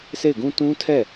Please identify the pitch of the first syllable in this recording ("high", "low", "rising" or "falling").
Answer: falling